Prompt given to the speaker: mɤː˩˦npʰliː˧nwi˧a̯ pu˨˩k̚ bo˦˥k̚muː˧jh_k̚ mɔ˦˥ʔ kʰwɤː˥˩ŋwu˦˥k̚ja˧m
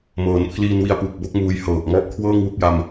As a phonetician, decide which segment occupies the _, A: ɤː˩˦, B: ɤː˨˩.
B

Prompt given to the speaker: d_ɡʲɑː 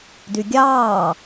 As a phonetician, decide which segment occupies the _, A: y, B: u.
A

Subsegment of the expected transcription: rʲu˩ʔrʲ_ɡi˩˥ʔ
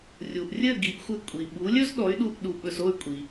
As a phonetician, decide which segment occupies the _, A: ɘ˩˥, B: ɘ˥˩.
B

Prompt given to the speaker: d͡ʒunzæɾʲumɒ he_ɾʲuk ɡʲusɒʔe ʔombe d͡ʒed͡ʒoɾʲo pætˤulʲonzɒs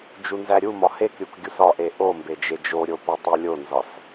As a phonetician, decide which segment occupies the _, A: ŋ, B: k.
B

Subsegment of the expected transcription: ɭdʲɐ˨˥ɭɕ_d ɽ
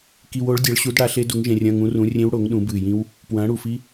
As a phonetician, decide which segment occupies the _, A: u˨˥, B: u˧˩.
A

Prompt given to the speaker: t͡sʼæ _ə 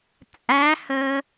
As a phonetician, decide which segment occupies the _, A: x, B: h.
B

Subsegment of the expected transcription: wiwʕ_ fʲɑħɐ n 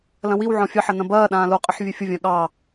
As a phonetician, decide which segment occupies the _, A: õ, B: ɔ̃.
B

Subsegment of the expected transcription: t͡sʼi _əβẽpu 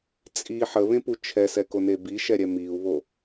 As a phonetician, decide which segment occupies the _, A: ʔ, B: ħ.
B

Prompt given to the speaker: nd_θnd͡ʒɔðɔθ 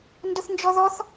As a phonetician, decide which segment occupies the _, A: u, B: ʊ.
B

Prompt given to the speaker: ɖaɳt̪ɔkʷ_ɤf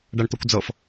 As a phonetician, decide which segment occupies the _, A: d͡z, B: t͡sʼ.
A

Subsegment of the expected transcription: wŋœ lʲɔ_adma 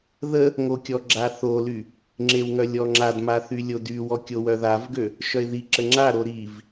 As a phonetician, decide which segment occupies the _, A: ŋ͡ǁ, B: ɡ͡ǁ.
A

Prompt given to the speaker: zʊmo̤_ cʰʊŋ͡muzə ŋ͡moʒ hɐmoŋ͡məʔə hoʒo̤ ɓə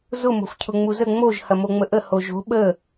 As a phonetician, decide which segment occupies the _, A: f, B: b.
A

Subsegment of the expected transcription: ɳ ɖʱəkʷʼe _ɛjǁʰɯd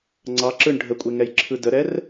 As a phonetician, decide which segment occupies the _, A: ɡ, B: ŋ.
B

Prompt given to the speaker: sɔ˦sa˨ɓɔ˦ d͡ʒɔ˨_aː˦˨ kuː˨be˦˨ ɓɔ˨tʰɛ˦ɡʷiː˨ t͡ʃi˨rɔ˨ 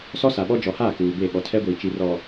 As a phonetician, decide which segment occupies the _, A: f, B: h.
B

